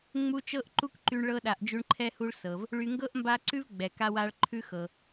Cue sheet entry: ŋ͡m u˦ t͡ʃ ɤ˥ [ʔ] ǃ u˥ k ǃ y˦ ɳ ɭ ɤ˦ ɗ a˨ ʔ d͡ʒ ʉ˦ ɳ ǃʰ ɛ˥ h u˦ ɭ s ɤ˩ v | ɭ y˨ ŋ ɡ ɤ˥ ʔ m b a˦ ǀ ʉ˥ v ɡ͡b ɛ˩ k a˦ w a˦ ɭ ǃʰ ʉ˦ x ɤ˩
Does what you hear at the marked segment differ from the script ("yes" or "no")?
no